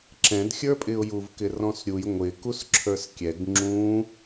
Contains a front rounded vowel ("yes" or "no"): no